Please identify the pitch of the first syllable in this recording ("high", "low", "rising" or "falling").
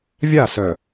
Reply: falling